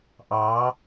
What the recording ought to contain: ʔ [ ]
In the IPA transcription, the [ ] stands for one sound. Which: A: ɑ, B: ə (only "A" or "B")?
A